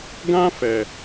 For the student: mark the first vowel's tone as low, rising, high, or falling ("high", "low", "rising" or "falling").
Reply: high